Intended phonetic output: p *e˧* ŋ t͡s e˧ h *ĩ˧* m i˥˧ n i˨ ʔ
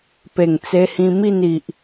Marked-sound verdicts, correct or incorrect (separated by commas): incorrect, correct